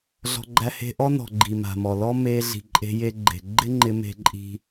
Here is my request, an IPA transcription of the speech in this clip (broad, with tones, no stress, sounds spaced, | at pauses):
ɮ ɔ̤˧ ɡ͡ǃ æ˧ h e̤˧ ʔ ɔ˦ n ɔ̤˨ ɡ͡ǃ i˨ m a̤˨ m ɔ˨ l ɔ˦ m e˧ ɮ i̤˨ ǃʼ e̤˧ j e˧ ɡ͡ǃ e̤˨ ɡ͡ǃ ɪ˦ ŋ͡ǃ ɪ˧ m e̤˧ ǃʼ i̤˧